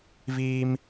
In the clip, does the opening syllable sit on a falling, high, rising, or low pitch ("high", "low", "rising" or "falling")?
high